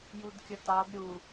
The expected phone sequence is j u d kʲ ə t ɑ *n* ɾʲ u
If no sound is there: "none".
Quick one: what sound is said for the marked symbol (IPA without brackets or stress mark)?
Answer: d